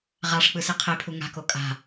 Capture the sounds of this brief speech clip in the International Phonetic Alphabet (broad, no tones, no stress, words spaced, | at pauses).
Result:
ʁaʂ k͡pɯsiqʰepʰu ŋa̤ko kʼa̤